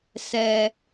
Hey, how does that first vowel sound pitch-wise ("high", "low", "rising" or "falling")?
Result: low